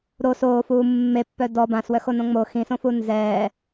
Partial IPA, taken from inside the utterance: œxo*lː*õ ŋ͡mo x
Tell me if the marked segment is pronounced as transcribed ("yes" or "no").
no